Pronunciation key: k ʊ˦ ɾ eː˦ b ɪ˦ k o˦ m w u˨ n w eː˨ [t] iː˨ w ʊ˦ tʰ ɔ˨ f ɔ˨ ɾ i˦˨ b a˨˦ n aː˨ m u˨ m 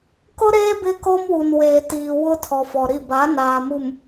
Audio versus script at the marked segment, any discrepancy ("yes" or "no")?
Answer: no